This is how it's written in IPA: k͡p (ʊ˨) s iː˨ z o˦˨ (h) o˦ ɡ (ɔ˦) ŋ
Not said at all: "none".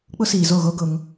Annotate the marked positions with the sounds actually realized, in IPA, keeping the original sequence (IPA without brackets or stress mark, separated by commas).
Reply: ʊ˦, ɣ, ʊ˦